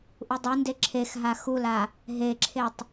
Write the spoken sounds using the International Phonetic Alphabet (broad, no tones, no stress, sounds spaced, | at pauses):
ʔ u dˤ u n d e ǁʰ e x ɦ a x u l a | ɦ e ǁʰ e tˤ